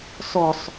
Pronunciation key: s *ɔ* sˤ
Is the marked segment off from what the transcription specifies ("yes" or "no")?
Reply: no